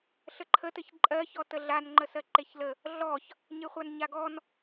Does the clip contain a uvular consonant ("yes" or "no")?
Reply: yes